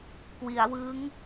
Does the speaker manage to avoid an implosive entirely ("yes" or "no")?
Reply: yes